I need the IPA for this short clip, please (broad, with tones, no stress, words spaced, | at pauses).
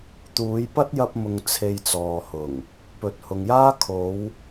t̪uː˨˧jpɐ˥t̚jɐ˧p̚mʊ˨ŋ t͡sʰe˧jt͡sɔː˨hʊ˨˩ŋ | pɵ˨t̚hʊ˨ŋjaː˥ kʰo˨˧w